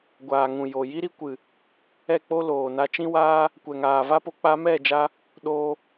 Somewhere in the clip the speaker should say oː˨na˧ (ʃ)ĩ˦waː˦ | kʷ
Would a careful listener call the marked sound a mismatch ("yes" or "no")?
yes